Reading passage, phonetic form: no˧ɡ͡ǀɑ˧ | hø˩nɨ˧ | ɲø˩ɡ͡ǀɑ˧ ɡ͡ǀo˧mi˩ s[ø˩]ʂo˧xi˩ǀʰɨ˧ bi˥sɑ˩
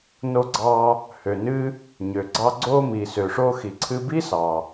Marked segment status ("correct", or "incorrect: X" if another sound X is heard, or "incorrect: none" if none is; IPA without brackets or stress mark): correct